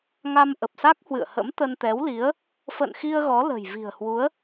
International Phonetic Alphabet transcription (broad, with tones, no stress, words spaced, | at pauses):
ŋa˧m ʔə˨˩p̚sa˦˥k̚hwɨ̰˧˨ə̯hə̰˧˥m t̪ə˧nt̪ɛ˨˦wli˨˦ə̯ | fə̰˧˨nxi˧ə̯ ɣɔ˨˦lə̤˨˩j vi̤˨˩ə̯hwu˨˦ə̯